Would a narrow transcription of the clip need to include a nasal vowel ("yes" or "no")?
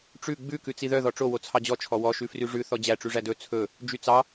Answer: no